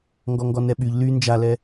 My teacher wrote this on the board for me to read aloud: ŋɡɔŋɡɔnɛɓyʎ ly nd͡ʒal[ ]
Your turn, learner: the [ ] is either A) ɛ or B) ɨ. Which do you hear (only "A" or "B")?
A